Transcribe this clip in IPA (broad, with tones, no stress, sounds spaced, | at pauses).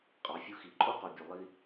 qʼ ɑ˨ fʲ u˧ x i˨ ǃʼ o˦ q o˨ bʲ ʉ˨ lˠ i˦